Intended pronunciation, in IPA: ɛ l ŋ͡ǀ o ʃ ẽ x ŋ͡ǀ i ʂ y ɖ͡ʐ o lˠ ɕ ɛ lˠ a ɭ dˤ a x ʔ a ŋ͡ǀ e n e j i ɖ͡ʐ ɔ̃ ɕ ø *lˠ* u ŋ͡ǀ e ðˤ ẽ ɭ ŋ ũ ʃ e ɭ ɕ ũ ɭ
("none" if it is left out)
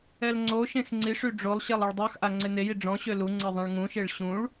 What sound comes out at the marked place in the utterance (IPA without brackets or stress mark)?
l